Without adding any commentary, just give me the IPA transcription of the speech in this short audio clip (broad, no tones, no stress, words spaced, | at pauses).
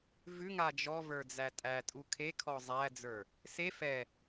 vʉŋa d͡ʒɔvə˞d͡zæ tʼætʼu kʰekʰɔ zˤæd͡zə˞ | se fɛ